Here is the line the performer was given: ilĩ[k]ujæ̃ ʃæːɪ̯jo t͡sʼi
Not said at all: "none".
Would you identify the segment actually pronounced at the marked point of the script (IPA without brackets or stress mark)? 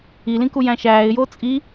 k